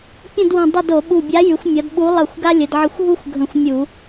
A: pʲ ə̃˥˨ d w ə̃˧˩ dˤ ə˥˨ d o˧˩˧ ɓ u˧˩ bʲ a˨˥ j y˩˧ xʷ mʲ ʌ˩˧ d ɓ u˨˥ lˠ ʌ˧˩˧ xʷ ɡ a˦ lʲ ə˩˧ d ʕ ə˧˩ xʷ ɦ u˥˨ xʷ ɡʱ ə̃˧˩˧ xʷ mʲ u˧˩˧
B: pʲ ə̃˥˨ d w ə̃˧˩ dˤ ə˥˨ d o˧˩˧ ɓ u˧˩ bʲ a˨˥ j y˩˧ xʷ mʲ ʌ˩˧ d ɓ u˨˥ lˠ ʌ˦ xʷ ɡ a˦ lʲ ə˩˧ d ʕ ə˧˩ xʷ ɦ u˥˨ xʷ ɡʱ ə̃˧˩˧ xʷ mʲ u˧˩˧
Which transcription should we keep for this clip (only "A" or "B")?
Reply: A